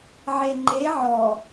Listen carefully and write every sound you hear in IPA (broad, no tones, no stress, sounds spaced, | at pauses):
ʕ e ŋ͡ǃ e ʕ ɔ